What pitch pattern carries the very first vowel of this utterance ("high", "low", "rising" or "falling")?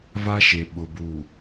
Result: high